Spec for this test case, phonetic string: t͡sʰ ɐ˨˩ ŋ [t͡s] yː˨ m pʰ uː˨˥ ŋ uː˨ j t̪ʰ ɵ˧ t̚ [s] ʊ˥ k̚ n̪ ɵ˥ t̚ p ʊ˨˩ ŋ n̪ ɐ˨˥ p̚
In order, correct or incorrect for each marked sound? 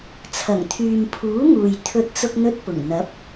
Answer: incorrect: t̪ʰ, incorrect: t͡s

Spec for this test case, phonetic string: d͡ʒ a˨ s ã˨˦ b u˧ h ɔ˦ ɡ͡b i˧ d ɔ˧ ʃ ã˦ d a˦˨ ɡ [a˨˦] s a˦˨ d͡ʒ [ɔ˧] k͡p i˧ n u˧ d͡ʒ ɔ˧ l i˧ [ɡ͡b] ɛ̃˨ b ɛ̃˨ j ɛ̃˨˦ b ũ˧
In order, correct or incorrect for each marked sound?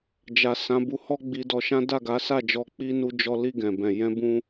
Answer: correct, correct, incorrect: ɡ

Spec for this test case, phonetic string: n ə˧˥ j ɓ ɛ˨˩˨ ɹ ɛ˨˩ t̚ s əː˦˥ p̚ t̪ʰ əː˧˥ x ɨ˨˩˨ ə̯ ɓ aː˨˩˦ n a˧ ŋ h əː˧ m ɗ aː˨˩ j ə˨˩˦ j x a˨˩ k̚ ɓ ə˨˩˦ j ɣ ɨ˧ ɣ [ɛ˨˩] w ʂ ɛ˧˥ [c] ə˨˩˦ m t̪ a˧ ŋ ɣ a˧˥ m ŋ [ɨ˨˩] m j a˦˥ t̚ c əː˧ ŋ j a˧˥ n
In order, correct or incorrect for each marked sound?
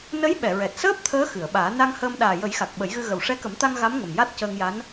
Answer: incorrect: ə˨˩, incorrect: k, incorrect: ə˨˩

